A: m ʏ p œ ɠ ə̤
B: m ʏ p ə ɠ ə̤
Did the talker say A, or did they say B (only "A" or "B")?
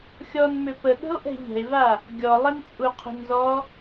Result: B